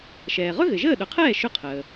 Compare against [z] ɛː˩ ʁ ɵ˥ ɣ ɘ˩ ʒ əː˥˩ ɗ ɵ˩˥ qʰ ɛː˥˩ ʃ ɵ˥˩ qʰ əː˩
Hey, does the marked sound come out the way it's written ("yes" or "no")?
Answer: no